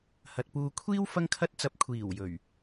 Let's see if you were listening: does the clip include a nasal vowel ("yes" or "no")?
no